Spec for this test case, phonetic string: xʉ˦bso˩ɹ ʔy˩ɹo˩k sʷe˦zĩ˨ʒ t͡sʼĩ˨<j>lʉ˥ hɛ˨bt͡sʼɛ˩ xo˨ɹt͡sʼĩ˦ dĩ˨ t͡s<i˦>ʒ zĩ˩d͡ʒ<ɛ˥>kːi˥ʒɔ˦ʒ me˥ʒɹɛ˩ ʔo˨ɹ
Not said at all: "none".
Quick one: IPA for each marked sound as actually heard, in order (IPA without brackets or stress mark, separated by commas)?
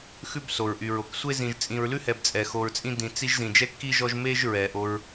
ɹ, i˦, ɛ˥